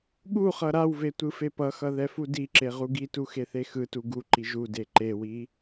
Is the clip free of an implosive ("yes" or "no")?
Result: no